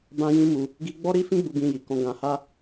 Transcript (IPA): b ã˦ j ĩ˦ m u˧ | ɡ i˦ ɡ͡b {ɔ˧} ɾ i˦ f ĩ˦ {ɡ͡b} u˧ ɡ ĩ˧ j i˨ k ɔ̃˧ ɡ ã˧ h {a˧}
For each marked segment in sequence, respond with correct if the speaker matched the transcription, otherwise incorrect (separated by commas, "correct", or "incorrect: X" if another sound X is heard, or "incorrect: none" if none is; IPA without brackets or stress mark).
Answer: incorrect: ɔ˦, correct, incorrect: a˦